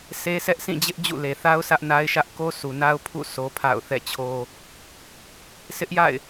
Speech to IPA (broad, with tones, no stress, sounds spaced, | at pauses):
s e˦ sʰ ɛ˦ ʔ s ĩ˦˨ d͡ʑ ɪ˦ ʔ d͡ʑ ṵ˦˨ l e˨ θ a˦ ʊ̯ s ä˦ ʔ n a˦ ɪ̯ ʃ ä˦ ʔ k o˦ s u˨ n a˦ ʊ̯ pʰ ṵ˦˨ sʰ o˦ pʰ a̰˦˨ ʊ̯ θ ɛ̰˦˨ t͡ɕʰ o˦ | sʰ ɪ˦ ʔ j a̰˦˨ ɪ̯